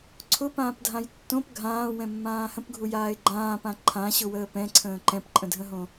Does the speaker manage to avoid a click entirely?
no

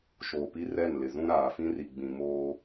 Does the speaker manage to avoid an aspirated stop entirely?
yes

